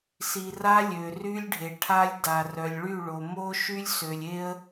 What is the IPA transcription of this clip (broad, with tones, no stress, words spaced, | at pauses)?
si˨ra˦lʲø˨ ry˦lʲɖʱe˨ʈʰa˦lʲda˨ rœ˨lʲɭy˦˨ ɭo˨mo˦ʃy˦lʲ sø˨lʲe˦ə̯